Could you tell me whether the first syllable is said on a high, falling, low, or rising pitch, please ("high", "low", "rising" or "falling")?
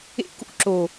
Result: low